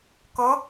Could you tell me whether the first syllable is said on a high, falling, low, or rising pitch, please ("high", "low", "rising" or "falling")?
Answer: rising